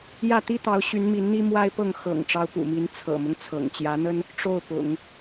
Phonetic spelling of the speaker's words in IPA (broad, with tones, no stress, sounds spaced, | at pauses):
j ä˥˩ t̪ i˥ t̪ ɑ˧˥ ʊ̯ ɕ y˧˥ n m i˧˥ n n̪ i˥ m w a˥ ɪ̯ p ɤ˥˩ ŋ x ɤ̰˨˩ ŋ ʈ͡ʂ ɑ˧˥ ʊ̯ p ṵ˨˩ m i˧˥ n t͡sʰ ɤ̰˨˩ m ʊ˦ ŋ t͡sʰ ɤ̰˨˩ ŋ t͡ɕ j ä˧˥ n̪ ə˥ n | ʈ͡ʂ o˥˩ ʊ̯ p ʊ̰˨˩˦ ŋ